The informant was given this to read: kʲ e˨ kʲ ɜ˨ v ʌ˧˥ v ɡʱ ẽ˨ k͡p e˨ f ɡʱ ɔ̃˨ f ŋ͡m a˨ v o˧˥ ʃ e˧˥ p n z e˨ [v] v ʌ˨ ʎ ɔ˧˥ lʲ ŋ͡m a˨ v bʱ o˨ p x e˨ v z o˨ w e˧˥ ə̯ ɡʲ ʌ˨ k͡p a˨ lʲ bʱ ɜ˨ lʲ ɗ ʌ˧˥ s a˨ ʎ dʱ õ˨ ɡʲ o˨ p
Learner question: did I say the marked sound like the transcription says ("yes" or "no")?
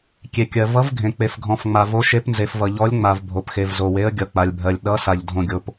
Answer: no